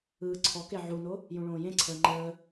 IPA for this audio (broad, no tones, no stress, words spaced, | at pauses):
ɯːǀʰɔke ʕuno | jũɭõːjẽǀʰəː ŋ͡ǃəː